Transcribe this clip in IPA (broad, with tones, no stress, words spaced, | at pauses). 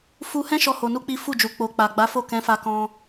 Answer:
fu˧hɛ̃˦ ʃɔ˦ho˧nu˦k͡pi˦ fu˦˨d͡ʒu˨k͡po˨ k͡pa˨ɡ͡ba˨˦fo˦˨ kɛ̃˨˦fa˧kɔ̃˧